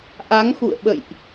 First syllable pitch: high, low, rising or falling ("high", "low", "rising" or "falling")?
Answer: rising